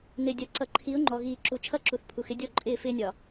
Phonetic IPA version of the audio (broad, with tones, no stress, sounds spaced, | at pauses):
n ɪ˨ dʲ ʌ˨ ǀ ʌ˨ ǃʰ i˨˦ ʊ̯ ŋ͡ǃ ɔ˨ ɣ iː˨ ǁ u˨ t͡ʃʰ ʌ˦ ǁ u˨ θ pʰ u˨ x ɪ˦ dʲ ɔ˦˨ ǃʼ ɪː˦˨ f ɪː˦ nʲ ɒ˨